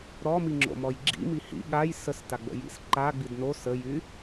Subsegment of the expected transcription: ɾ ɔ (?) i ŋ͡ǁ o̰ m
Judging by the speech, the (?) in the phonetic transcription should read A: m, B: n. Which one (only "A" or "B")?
A